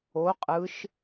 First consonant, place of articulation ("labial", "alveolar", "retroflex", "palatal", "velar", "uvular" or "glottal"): uvular